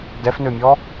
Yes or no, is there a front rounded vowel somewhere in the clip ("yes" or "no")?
yes